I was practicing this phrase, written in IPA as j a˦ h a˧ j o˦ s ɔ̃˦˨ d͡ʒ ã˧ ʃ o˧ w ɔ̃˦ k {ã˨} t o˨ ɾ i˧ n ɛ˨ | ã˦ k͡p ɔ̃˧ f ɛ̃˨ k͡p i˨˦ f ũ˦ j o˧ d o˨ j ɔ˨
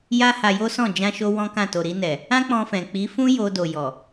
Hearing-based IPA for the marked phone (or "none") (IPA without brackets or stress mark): ã˦˨